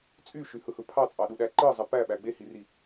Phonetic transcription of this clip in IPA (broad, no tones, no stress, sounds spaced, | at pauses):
t͡sʼ y ʃ y h ɯ h ɯ pʰ ɑ t͡sʼ ɑ ɗ u ɗ æ ǃ ɯ zˤ i p æ ɓ æ ɡ͡b e h i r i